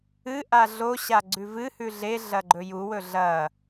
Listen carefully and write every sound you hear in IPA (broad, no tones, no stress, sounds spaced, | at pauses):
ɨ ʔ a ɮ o ɕ a ɡ͡ǀ ʉ v ɨ h ʉ ɮ e ɮ ɐ ɡ͡ǃ ɵ j u w ɵ ɮ ɐ